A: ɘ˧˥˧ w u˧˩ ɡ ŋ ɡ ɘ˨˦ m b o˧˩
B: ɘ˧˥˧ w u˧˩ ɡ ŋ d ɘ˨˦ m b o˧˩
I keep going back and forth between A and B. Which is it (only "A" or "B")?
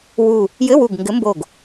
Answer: A